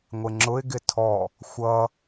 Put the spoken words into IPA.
ŋʷ ɪ ŋ͡ǁ ʊ ɪ̯ ɡ ɪ tʰ ɔ | xʷ ʌ

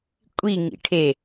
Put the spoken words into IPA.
kʷʼ i ŋ ḭ ʈʰ e

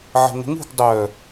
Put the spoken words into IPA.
ʕ ə̤ ŋʷ ə̤ ŋ ṳ ɡ dˤ œ

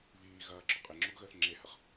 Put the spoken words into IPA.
β iː ɣ ɐː ǁ ɔ qʼ e ŋ͡ǁ o ɡ ɣ əː θ ŋ͡ǁ e h ə χ

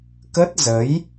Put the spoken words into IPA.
k ə˦˥ t̚ z ə˨˦ j

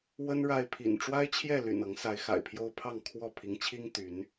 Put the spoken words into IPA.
w ə˦ n ɻ a˥˨ ɪ̯ pʰ ḭ˨˩ n ʈ͡ʂ w a˦ ɪ̯ t͡ɕʰ j ɛ˥˨ l y̰˨˩ n ɤ˨˦ ŋ s a˨˦ ɪ̯ x a̰˨˩ ɪ̯ pʰ j o˦ ʊ̯ pʰ ɑ˥˨ ŋ kʰ w ɔ˥˨ pʰ i˨˦ ŋ t͡ɕʰ i˦ ŋ t̪ y˨˦ n

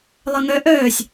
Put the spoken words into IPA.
lˠ ə ŋ œ ʔ œː sʲ

